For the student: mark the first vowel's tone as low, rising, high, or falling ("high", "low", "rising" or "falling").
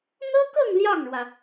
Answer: high